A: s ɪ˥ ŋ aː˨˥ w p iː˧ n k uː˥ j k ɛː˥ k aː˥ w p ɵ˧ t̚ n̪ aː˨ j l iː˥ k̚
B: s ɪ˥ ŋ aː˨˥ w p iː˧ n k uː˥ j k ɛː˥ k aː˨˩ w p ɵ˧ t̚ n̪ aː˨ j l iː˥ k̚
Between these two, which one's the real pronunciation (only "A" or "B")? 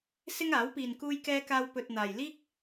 A